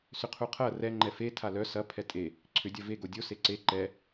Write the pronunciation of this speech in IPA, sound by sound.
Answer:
sʏqʰuqʰɐ rɛ ŋ͡ǃɛfe tʰalœ sɐ pʰɛtʼe | ǀʰʏ dʲɐve ɡodʲo seǀe ǃɛ

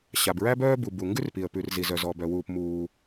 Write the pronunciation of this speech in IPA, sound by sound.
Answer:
ɕa˩bɹæ˥ bœː˥bu˩ bu˩ŋɡʉ˥rpi˩ə̯ pʉ˩rzi˩zœ˩ zɔ˩ bœ˩wuː˩p muː˩

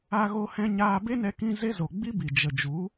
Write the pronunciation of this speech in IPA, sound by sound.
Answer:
a˧ɣo˧hɛ̃˧ ɲaː˧be˦nɛ˧ kĩ˧ ze˦zo˨ ɡ͡bi˦bi˨ d͡ʒə˨ d͡ʒu˨˦

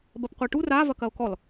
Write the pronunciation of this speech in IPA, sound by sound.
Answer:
bɐpqʷeʈu ra vɐkɐo̯kɔl

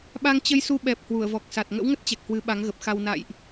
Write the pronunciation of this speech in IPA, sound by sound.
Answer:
ɓa˧ŋt͡ɕə˧jsu˧ ɓɛ˨˩p̚ hwu˧˩ə̯vɔ˨˩k̚sa˨˩t̚ ŋə̰˧˥wŋə˦˥t̚t͡ɕɛ˨˩k̚ hwɨ˨˦ɓa˨˦ŋ ɣə˨˩p̚xa˧w na̰˧˨jʔ

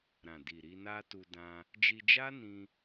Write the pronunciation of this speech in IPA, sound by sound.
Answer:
ɾã˨di˨ ɾi˧na˦tu˧ dã˧ | d͡ʒi˧d͡ʒa˦nĩ˧

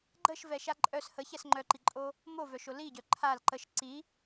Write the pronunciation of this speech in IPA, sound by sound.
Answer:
ɡ͡ǃəʃvɛʃa ǃʼœs həçɛs ŋ͡ǃœǃiǃʼo | movœʃo liɟœ ǃʰal ǃəʃ ǀi

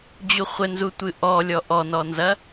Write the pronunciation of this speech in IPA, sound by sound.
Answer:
d͡ʑuχʷɘnzutʷɨ ʔɔ lʲɔʔɔnɔnzɐ

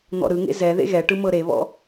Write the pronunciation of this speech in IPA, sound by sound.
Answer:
n̪ɔ̰ɾɯŋḛ zɛ ðḛɣɛʈɯ mɤɾeβɔ̰

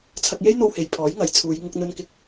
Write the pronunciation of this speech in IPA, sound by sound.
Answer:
t͡sʰɐ˧k̚je˥jn̪o˧whe˨j pʰɔː˨˥jŋɐ˨˥jt͡sʰuː˨˧j ŋʊ˧k̚n̪ɵ˧nkɪ˧k̚

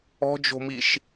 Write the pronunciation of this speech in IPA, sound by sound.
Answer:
ɔ̤d͡ʒo̤miʃ

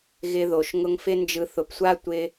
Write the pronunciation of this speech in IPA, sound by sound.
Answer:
ɣɪ˧ðo˨ʃ ŋʊ˧ŋfɪ˦nd͡ʒɯ˧ θʊ˨psʷa˦ tʷɪ˧

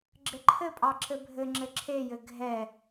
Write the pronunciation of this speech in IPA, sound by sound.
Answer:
ɡ͡ǁɘǃʰɘpʼɑ ǁɘbʱɘŋ͡ǁɘ ǁʰejɘ ɡʱɛ

